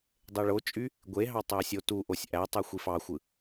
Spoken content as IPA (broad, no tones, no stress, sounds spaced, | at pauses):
dˤ e ɭ o t͡ʃʼ y | ɡʷ e ɦ ɑ tˤ æ sʲ o t u ʔ o sʲ ʔ æ tˤ ɯ xʷ i f ɑ xʷ ɯ